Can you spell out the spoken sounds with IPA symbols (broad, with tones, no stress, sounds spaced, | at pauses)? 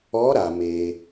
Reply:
ɔ˧˥ ɾ a˩ m e˩